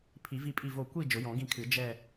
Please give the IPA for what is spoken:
pʰi˨˩˦vi˦˨pʼi˦˨vo˦˨ kʷi˦˨ d͡ʒʊ˨˩˦jɔ̃˨˩˦ɡĩ˦˨kʰɨ˨˩˦ d͡ʒɛ˦˨

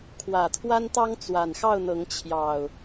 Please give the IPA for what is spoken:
kʰwä˨˩t̪ʰwa˦nt̪ɑ˦ŋ t͡swa˨˩nxɑ˥˨ʊ̯n̪ɤ˨˦ŋ t͡ɕʰjɑ˨˩ʊ̯

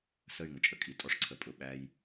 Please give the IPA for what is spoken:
sə˦˨y̯ŋə˨t͡ʃʼə˨kʼi˨ tʼɔ˦ʂǀʰə˨pʼʊ˦˨ ɓæ˦j

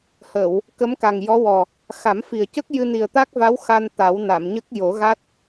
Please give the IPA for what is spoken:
hə˨˩˨w | kə˧˥mka˨˩ŋjɔ˧˥wɔ˨˩ | xa˨˩˦mfi˨˩ə̯cə˦˥k̚ jɨ˧ni˨˩ə̯t̪a˦˥k̚va˧˥w xa˧n t̪a˨˩˦w na˨˩˨mɲə˦˥k̚jo˨˩˦ɣa˦˥t̚

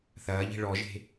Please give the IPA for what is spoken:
θɐːʎi̤ ɭɔʒe̤

